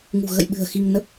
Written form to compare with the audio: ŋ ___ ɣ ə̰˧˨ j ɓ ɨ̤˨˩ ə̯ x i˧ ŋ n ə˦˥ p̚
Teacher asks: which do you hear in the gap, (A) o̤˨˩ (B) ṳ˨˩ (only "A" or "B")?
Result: B